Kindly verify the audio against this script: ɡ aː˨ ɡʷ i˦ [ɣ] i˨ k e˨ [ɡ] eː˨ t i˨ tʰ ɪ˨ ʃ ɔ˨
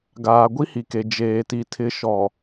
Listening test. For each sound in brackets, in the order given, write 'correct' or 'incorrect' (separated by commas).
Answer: incorrect, incorrect